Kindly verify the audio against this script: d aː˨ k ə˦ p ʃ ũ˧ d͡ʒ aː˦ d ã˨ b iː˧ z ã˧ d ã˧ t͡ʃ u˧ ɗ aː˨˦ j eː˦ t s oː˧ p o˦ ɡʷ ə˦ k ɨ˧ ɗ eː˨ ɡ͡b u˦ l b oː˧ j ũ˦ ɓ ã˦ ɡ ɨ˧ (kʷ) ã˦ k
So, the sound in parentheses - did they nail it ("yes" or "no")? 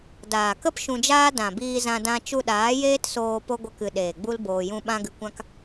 yes